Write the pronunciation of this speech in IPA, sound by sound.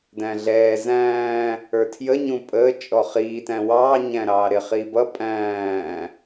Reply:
d æ̃ ɮ ɛː z æ̃ː | ə˞ tʰ j ə ɲ ũ pʼ əː t͡ʃʼ ɔ χ iː t æ̃ w ɑː ɲ æ̃ ɾ ɑː ɾ ɪ χ iː b ʌ pʼ æ̃ː

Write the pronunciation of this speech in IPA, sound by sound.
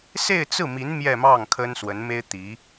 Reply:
s e˥˧ ɪ̯ t͡s ɹ̩˥˩ m i˧˥ n m j ɛ˥˧ m ɑ˥˩ ŋ kʰ ə˥ n s w ə˧˥ n m e˥ ɪ̯ t̪ i˧˥

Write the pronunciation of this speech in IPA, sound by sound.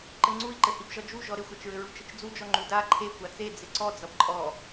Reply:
ǃ ɘ ŋ͡ǀ u i̯ ǃ ɘ h i b ʒ ɒ d͡ʒ u ʒ ɔ ɾ ɪ xʷ a t͡ʃ ɹ ɘ ɹ u t͡ʃ ɘ t͡ʃ d͡z u d͡ʒ ɔ ŋ͡ǃ u d a ǃʰ e kʷ a t͡s e d͡z ɪ ǀ ɔ d͡z ʌ b ǃʼ ɔ

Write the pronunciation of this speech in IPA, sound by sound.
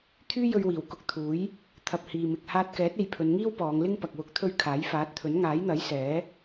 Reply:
t̪ʰ yː˥ j ɵ˧ ɥ w iː˨˩ w k ʊ˧ k̚ t̪ʰ uː˨˥ j | t̪ʰ ɐ˨ p̚ h iː˨ m ɪ˨ k̚ h aː˧ t̚ k ɛː˨˥ t̚ e˧ j pʰ ɵ˨˧ n ŋ iː˥ w p ɔː˨˧ ŋ l ɪ˥ ŋ p ɐ˨ k̚ w ʊ˨˥ k̚ t̪ʰ ɵ˧ ɥ kʰ aː˨˥ j f aː˨˥ t̚ t̪ʰ ɵ˨˥ n ŋ aː˨˥ j n̪ ɐ˨˥ j s ɛː˨˥

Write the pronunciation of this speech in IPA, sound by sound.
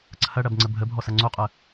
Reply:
ǀʰ ɐ ɽ ɐ b ŋ͡ǀ ə bʱ ə bʱ ɔ s ɐ ŋ͡ǀ o qʼ ə

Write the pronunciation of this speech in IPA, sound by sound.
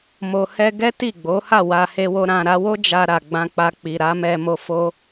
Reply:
m o˧ h ɛ˦ ɡ ɛ˦ t i˦˨ ɡ͡b o˨˦ h a˦˨ w a˧ h e˧ w o˧ ɾ ã˨ ɾ a˧ w o˦ d͡ʒ a˧ ɾ a˨ ɡ͡b ã˧ k͡p a˧ k͡p i˨ ɾ a˨˦ m ɛ˧ m o˧ f o˦

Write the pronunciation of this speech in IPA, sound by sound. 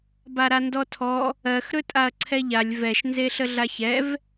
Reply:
b a ɾ a n d ɔ tʰ ɔ | ɜ x ɾ ɵ tʼ a ɐ̯ ǀʰ ɛ ʎ a lʲ v ɛ ʃ n z e ɬ ə ɮ a ç ɛ v

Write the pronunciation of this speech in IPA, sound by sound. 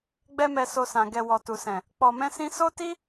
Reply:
ɡ͡b ɛ˦ m ɛ˧ s o˧ s ã˨ ɡ ɛ˨ w ɔ˨ t u˨ s ɛ̃˨ | k͡p ɔ˨ m ɛ̃˧ s ĩ˧ s o˦ t i˦

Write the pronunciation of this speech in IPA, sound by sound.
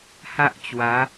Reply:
h a˦ ʔ t͡ɕ w a˨˦

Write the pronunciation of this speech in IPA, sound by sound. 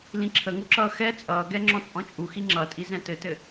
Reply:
l ĩ ǁʰ ə ŋ u ǁ ʌː x ɛ t͡sʼ ʌː ɡ ɛ ŋ͡ǁ ɔ̃ t͡sʼ ɔ̃ t͡ʃʼ u x i ŋ͡ǁ ʌ tʼ i z ɛ̃ t ɘ t ɘ

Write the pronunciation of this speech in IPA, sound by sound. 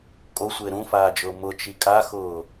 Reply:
kʼ o sʷ ɪː ɾ ũ f aː d͡ʒ ʊː m ʊ t͡ʃ i kʼ a x ʊː

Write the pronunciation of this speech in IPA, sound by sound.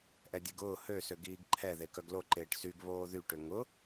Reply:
ʔ ɛ dʲ e ɡ ʊː h ø s ø ɡ iː ɡ ǃʰ ɛ ð e k œ ɡ l o ǃ eː ʈ s y ɡ β oː ð y ʈ ʏ ŋ ʊ

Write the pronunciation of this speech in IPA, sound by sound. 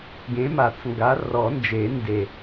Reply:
ɡ ẽ˨˦ m a˨˩˦ t͡s ŋ ɡ a˨˦ r ɔ˨˩˦ n d͡ʒ e˨˩˦ n d e˨˩

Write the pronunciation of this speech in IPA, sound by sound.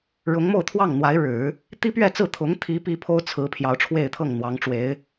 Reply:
ɻ ʊ˧˥ ŋ m o˥˧ ʊ̯ t̪ʰ w ɑ˥˩ ŋ n̪ w a˧˥ ɪ̯ ɻ ɻ̩˨˩˦ | t̪ i˥ p ɥ ɛ˥˧ t͡s ɹ̩˥˩ t̪ʰ ʊ˧˥ ŋ t̪ʰ i˧˥ p i˧˥ pʰ o˥ ʊ̯ t͡sʰ ɹ̩˧˥ pʰ j ɑ˧˥ ʊ̯ ʈ͡ʂʰ w e˥˧ ɪ̯ t̪ʰ ɤ˥˩ ŋ n̪ w ɑ˧˥ ŋ ʈ͡ʂ w e˧˥ ɪ̯

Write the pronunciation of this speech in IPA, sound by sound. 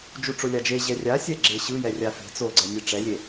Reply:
d͡ʒ u ʈ͡ʂ o lʲ a d͡ʒ e ʑ ɛ rʲ a sʲ ɛ ɡ͡ǁ ɪ ɕ ɯ j ɛ rʲ a f e̤ t͡s o ɡ͡ǀ ɛ nʲ e ʈ͡ʂ ɛ lʲ e

